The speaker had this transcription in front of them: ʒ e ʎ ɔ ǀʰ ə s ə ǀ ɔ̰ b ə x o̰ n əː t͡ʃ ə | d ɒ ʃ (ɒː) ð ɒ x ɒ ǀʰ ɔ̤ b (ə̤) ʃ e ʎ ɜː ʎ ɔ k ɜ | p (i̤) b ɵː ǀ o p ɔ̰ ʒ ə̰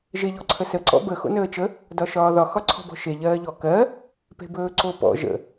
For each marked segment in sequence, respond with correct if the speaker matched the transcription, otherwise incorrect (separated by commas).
correct, incorrect, incorrect